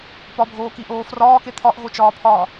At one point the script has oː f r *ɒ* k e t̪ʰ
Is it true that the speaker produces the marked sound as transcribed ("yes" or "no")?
no